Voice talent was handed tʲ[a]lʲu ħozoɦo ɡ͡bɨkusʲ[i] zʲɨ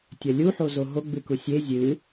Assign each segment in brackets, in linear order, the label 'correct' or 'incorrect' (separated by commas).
incorrect, incorrect